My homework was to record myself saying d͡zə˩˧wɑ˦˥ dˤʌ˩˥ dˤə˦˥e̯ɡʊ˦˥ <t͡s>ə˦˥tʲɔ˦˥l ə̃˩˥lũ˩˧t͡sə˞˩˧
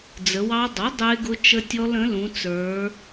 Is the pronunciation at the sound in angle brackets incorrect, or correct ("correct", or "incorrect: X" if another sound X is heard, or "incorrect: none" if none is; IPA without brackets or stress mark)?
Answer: incorrect: t͡ʃ